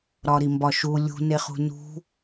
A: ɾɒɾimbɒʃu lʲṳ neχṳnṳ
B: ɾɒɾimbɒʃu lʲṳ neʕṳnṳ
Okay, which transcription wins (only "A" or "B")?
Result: A